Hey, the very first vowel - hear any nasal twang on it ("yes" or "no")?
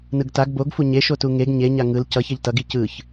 no